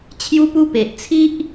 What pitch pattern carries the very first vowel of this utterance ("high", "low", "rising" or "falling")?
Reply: high